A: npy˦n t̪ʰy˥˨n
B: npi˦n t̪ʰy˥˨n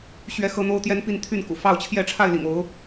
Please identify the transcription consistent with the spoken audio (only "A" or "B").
B